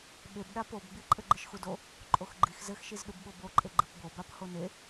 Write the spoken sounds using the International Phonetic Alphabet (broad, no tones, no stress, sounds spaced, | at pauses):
ɓ e b ɗ a p o b ɡ͡b i ǃʼ ɘ ɡ͡ǃ ɨ ʃ x u d o | ǃʼ o x ɡ͡ǃ i x z ɘ x ʃ i z ɗ u b ɓ o b o ǃʼ e ɡ͡ǃ ɨ p b o b a p h o n e